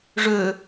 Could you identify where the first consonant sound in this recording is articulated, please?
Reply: retroflex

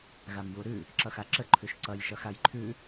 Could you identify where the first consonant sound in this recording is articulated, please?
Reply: velar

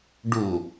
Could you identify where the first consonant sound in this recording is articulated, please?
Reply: retroflex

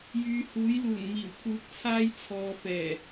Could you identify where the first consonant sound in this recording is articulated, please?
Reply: palatal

